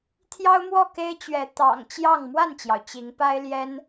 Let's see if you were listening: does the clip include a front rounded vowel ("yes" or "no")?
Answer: no